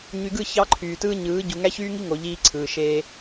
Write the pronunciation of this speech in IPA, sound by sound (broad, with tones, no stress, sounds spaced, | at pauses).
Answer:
ɲ y˨ ɡ ɯ˦˨ ç ɑ˦ ǃʰ yː˨ t ɯː˦ ɲ ɯː˨˦ ɟ u˨ ŋ æ˦ ç yː˦ ŋ i˦ ŋ o˨ ʎ iː˦ ǀʰ ɯː˨ ʃ eː˦